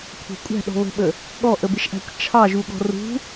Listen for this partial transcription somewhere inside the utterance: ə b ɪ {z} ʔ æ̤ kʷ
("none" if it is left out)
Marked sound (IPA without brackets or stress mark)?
ʃ